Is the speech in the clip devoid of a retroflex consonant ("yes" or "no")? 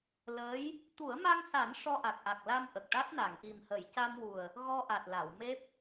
no